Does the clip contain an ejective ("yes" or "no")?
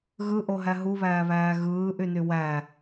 no